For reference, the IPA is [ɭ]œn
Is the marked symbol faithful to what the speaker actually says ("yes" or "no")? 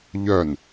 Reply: no